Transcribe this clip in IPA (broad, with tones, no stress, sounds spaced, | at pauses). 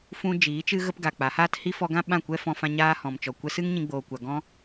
f ũ˧ d͡ʒ iː˨˦ t͡ʃ ɨ˦ ɣ ə˦ p ɡ a˨ k͡p a˨˦ h aː˦ t h i˦ f ɔ˧ ɡ ã˦ ɓ ã˦˨ kʷ ɛ˦ f ɔ̃˧ f ã˧ ɲ aː˦ h ɔ̃˨ m t͡ʃ ɔ˨ kʷ ɛ˧ s ɨ˦ ŋ ɲ ĩ˧ ɡ͡b oː˨ kʷ a˨ ɡ ɔ̃˦